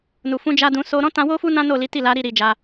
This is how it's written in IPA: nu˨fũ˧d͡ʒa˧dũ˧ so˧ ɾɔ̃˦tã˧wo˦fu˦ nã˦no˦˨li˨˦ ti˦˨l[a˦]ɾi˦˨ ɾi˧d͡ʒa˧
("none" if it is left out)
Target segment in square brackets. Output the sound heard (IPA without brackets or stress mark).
a˨˦